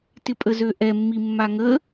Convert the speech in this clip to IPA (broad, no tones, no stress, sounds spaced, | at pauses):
t ɪ pʼ ə z ø ʔ ɛ mː i mː a ŋ ə